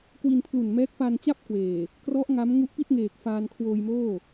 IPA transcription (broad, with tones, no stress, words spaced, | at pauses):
kwi˧npʰlu˨˩nmɛː˦˥k̚ pa˧nt͡ɕa˥˩p̚kweː˨˩ | krɔ˦˥ʔ ŋa˦˥m ŋu˦˥ʔpi˥˩t̚ŋeː˨˩k̚ faː˧nkʰwoː˧jmoː˥˩